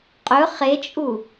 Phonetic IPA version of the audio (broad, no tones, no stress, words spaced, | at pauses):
qʼɵ χet͡ʃʼu